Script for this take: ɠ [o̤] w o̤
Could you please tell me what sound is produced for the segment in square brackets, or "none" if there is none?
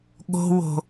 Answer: o̤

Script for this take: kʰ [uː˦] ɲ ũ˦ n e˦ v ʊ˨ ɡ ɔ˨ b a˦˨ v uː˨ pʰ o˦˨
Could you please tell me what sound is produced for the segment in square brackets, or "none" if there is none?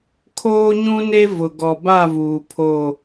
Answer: oː˦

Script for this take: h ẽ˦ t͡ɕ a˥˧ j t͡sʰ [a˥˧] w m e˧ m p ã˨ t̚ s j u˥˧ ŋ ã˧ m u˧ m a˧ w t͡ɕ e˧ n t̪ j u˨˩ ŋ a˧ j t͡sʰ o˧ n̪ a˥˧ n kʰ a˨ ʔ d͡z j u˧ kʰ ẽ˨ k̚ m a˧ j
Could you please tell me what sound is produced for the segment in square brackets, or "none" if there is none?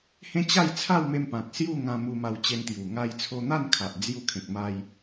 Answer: a˥˧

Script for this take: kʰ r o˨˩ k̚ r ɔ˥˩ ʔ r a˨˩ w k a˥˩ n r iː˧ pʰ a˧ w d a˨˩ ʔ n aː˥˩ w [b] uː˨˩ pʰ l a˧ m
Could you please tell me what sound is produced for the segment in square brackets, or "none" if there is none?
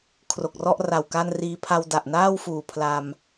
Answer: f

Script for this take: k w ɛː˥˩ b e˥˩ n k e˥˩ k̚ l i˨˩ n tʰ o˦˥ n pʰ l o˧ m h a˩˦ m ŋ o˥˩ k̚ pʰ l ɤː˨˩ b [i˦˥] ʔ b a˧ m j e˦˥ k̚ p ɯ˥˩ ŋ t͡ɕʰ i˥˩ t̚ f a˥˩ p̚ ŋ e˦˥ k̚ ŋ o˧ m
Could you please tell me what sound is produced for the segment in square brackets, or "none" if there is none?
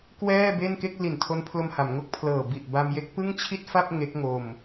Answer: i˨˩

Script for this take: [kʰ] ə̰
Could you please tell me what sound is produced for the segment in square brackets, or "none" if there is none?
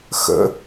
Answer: x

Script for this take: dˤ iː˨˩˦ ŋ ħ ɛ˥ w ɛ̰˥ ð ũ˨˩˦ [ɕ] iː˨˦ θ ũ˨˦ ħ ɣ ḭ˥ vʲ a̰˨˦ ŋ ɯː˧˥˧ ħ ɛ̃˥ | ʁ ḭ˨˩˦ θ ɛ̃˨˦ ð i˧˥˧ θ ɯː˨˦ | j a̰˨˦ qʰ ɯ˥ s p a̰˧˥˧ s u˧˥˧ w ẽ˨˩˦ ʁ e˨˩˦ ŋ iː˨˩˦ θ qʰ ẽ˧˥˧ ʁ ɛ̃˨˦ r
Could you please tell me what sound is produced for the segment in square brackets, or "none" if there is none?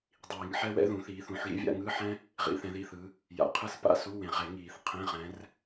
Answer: θ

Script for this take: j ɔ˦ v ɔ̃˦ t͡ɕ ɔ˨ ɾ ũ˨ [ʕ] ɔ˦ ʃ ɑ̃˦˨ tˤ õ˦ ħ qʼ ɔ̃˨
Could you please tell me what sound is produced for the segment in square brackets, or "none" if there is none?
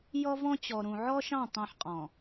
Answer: ʕ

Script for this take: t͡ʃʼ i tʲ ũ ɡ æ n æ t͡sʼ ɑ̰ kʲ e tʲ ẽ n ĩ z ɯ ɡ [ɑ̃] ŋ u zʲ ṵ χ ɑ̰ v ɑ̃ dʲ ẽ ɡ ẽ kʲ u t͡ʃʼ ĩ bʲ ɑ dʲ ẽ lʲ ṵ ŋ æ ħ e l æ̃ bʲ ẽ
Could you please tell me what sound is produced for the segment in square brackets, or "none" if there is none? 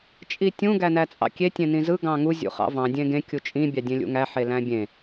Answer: ɑ̃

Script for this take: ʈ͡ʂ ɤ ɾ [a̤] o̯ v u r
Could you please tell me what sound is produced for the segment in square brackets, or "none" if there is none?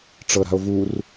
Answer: a̤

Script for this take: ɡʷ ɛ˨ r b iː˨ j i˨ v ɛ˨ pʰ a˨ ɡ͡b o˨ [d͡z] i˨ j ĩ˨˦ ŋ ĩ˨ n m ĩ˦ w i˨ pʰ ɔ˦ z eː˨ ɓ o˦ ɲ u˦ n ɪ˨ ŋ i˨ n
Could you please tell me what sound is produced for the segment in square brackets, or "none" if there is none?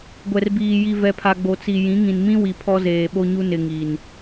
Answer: t͡s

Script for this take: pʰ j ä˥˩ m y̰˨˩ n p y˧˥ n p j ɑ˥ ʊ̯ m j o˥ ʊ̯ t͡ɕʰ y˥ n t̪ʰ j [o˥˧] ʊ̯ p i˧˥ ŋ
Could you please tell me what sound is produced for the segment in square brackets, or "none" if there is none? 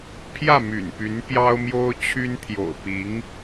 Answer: o̰˨˩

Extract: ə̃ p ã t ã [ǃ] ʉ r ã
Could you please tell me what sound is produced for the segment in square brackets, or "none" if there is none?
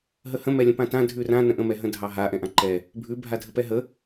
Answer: dʱ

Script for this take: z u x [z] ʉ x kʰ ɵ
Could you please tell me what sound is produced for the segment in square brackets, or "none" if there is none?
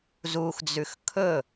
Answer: d͡z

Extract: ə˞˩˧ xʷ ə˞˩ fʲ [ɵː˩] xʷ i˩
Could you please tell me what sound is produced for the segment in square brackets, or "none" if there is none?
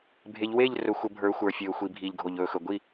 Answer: ɵː˩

